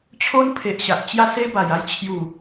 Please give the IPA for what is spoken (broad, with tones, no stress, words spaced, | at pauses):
t͡ɕʰo˦npʰe˨ʔɕa˨ʔ t͡ɕja˦se˦ba˨˩j a˦jt͡ɕʰju˨˩